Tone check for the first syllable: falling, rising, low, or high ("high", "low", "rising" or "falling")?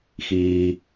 low